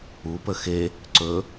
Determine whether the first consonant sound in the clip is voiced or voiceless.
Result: voiceless